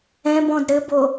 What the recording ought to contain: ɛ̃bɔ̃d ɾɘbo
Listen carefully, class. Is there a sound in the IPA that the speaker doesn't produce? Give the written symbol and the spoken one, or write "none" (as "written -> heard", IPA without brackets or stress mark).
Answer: none